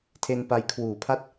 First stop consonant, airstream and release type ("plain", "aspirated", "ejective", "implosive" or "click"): aspirated